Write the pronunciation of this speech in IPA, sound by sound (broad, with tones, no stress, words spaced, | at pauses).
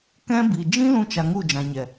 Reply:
kɛ̃˧bi˨d͡ʒĩ˦ lũ˦t͡ʃa˧ŋu˦˨ d͡ʒã˨ɲɛ˨